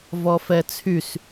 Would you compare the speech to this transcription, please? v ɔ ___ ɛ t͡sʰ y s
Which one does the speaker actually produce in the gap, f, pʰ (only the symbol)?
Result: f